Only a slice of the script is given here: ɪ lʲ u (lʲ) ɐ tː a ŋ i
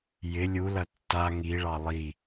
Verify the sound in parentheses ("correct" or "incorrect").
incorrect